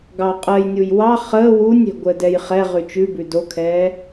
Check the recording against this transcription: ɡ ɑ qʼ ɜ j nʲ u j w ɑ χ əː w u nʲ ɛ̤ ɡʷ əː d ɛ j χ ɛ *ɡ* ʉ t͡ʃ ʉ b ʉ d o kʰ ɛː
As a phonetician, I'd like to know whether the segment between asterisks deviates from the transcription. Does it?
yes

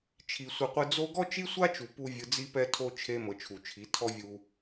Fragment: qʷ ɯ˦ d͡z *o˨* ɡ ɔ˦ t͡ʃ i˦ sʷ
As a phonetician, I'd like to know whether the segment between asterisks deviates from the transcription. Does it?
yes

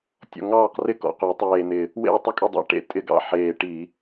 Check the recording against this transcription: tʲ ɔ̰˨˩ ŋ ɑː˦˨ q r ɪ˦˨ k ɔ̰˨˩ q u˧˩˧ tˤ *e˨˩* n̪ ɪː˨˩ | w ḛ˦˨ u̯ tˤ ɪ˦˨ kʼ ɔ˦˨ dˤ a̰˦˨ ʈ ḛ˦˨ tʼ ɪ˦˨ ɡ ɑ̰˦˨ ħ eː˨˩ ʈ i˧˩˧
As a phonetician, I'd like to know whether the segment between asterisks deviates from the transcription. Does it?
yes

